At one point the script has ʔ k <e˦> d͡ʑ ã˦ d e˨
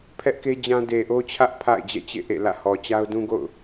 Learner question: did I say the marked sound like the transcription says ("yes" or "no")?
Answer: yes